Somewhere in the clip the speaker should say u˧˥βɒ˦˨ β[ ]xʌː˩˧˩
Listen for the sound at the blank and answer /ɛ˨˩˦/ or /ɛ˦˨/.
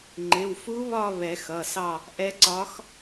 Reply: ɛ˨˩˦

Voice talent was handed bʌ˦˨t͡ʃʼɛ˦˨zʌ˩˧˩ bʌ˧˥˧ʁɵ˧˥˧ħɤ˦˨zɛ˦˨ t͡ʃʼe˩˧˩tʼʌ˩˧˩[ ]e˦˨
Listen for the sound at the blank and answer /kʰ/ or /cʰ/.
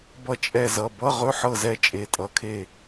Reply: kʰ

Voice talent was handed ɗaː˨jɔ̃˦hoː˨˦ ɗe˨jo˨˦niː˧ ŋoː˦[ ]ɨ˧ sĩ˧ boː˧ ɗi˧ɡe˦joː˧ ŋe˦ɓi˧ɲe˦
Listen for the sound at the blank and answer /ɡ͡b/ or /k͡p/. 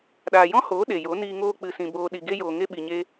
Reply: k͡p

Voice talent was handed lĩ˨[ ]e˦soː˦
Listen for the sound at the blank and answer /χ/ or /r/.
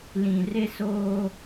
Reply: r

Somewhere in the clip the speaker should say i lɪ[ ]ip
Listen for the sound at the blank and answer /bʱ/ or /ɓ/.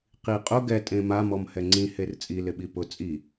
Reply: ɓ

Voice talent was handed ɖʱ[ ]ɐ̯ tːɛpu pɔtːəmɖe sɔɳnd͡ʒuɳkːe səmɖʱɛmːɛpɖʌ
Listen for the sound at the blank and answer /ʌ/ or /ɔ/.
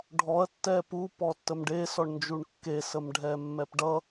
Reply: ɔ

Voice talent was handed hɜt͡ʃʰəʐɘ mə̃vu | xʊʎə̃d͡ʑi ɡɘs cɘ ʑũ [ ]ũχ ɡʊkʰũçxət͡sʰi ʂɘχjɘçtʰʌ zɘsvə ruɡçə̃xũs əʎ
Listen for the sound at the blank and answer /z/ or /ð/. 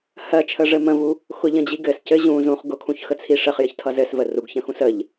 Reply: z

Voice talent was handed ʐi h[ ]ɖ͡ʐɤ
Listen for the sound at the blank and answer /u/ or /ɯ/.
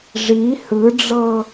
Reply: ɯ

